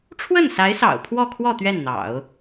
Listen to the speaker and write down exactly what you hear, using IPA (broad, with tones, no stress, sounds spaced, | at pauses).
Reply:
ʈ͡ʂʰ w ə˥˩ n s a˧˥ ɪ̯ s ɑ̰˨˩ ʊ̯ pʰ w ɔ˥˧ kʰ w ɔ˥˧ t̪ ɥ ɛ˥˩ n n̪ ɑ̰˨˩˦ ʊ̯